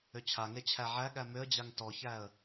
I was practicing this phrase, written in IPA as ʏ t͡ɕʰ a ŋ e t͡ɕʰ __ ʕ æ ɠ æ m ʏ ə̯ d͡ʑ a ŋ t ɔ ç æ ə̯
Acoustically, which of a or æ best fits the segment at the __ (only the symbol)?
æ